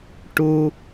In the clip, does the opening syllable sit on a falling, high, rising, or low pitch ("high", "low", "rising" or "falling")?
low